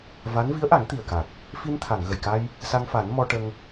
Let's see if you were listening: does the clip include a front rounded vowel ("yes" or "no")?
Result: no